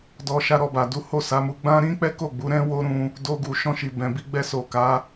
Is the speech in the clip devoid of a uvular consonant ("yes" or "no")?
yes